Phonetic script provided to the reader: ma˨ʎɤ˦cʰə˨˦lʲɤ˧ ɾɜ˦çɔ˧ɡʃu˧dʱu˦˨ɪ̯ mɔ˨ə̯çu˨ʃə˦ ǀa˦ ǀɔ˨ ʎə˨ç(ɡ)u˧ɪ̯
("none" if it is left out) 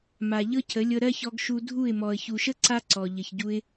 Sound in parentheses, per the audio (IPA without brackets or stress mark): ɟ